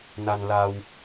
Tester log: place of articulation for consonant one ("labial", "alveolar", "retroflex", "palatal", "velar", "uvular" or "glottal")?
alveolar